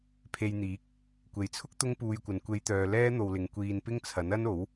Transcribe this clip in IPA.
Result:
pʰ e˧ j n̪ iː˨˥ k̚ | kʷ e˨ j t͡sʰ ʊ˥ k̚ t̪ ʊ˥ ŋ p uː˧ j kʷ ɐ˨ n kʷ e˨˧ j t̪ œː˨ l ɛː˥ n̪ o˧ w l ɪ˨˧ ŋ kʷ iː˧ n p ɪ˥ ŋ t͡sʰ ɐ˨˥ n ɐ˥ n o˨˥ w

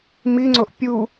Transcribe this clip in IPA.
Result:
m i ŋ͡ǀ o ʔ pʲ u

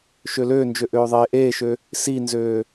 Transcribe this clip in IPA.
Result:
ʃ ø l øː n d͡ʒ ø ʔ øː ðˤ eː ʔ eː ʃ ø | s i n z øː

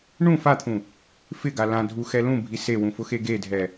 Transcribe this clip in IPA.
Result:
ɳ ũ f a t̪ʰ ũ | f ɪ ɡ a l ã dʱ u x ɛ l ũ bʱ i s e w ũ f ʊ x e ɡ e dʱ ɛ

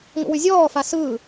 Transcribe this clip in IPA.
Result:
ŋ o̰ w ʉ zʲ ɔː f a s ɯː

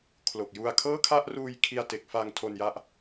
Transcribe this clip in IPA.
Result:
kʰ l o˨˩ k̚ j u˧ a̯ kʰ ɤː˥˩ kʰ a˥˩ ʔ r uː˧ j kʰ i˧ a̯ t e˨˩ k̚ f a˧ ŋ tʰ o˧ n j a˦˥ ʔ

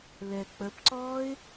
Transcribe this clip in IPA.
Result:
l ɛ k͡p ə p ǀ ɔː ɪ̯

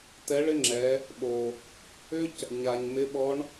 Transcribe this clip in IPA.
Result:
t ɛ˧˥ ɭ ɪ˥ ŋ͡ǁ ɛ˩˧ | ɓ o˩ | ʏ˥ c | ɲ a˩ ɲ m ɪ˧˥ ɓ ɔ˧˥ ɳ

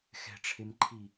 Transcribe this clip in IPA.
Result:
x ɛ̤ ʈ͡ʂʰ e m ǃʰ i

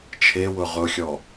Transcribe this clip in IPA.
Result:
t͡ʃʰ e w ʊ ʁ ʊ xʲ ɔ

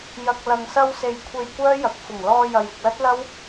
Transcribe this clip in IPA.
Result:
j ɐ˨ k̚ l ɐ˨ ŋ s ɐ˧ w s e˨ j kʷʰ e˧ j kʷ œː˥ j ɐ˨˥ k̚ f ʊ˨˩ ŋ l ɔː˧ j ɐ˨ j ɪ˨ k̚ l ɐ˥ t̚ l ɐ˥ w

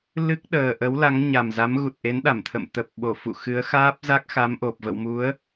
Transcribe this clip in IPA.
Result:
l ɨ˦˥ k̚ ɗ əː˨˩ ʔ ə˨˦ w l a˨˦ ŋ ɲ a˨˩ m z a˨˦ m ɣ u˨˩ t̚ ʔ e˨˦ n ɗ a˧˩ m t̪ʰ ə̰˧˨ m t̪ ə˨˩ p̚ ɓ o˧˩ f ṵ˧˨ x ɨ˨˦ ə̯ x aː˦˥ p̚ z a˦˥ k̚ x a˨˦ m ʔ o˨˩ p̚ v ə̰˧˨ w m u˨˦ ə̯

